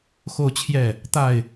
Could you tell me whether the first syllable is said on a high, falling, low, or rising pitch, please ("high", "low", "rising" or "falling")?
falling